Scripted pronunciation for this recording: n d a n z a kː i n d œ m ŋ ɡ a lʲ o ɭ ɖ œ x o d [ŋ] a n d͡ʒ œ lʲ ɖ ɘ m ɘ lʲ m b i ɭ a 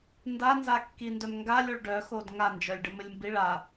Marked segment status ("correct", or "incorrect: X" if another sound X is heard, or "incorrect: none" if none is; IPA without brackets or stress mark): correct